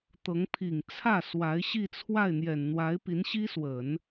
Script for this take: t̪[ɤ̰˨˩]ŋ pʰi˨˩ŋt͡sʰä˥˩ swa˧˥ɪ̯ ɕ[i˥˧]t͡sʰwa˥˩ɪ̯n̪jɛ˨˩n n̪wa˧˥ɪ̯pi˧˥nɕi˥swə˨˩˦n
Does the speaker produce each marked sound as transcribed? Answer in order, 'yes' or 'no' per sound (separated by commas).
no, yes